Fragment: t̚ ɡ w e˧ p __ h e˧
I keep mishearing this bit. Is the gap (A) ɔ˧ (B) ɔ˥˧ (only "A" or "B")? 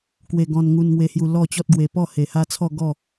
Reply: B